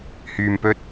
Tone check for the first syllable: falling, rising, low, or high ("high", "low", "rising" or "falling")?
low